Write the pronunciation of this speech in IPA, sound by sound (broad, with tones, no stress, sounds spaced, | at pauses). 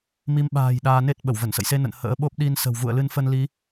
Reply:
m i˨˦ m ɓ a̤ː˨˩ j ɗ aː˧ n e˦˥ t̚ ɓ ə˧˩ w v ə˧˩ n s ə̰˧˨ j s e˧ n ə̰˧˨ n h ə̰ː˧˥ ɓ o˦˥ p̚ ɗ i˧ n s ə̤˨˩ w v ṵ˧˨ ə̯ l ɨ˧ n f ə˧ n l i˨˦